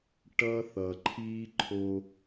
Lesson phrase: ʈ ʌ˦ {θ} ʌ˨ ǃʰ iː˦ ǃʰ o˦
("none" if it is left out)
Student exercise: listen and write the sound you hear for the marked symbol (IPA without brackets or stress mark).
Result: θ